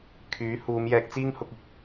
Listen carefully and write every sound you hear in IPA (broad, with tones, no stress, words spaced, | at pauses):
kʰyː˨˥huː˨˧m jɛː˧k̚t͡siː˥ŋhʊ˧k̚ɪ˨k̚